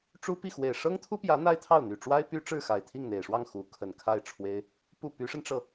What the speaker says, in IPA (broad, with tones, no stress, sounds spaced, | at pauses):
ʈ͡ʂ u˥ p i˥˩ x w e˨˩ ɪ̯ ʂ ɤ˥ ŋ t̪ʰ u˥ p j ä˧˥ n̪ a˥ ɪ̯ t̪ʰ ɑ˥˩ ʊ̯ n̪ y˨˩ ʈ͡ʂ w a˥ ɪ̯ p y˥ ʈ͡ʂ ɻ̩˥˩ x a˨˩ ɪ̯ t̪ʰ i˥˩ ŋ n̪ e˨˩ ɪ̯ ʂ w ɑ˥˩ ŋ x u˧˥ kʰ ə˨˩ n kʰ a˥˩ ɪ̯ ʈ͡ʂʰ w e˥ ɪ̯ | p u˥˩ p y˧˥ ʂ ə˧ n ʈ͡ʂ ɤ˥˩